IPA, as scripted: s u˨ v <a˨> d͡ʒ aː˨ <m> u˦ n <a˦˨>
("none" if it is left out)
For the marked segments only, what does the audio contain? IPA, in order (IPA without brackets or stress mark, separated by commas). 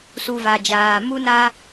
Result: a˨, m, a˦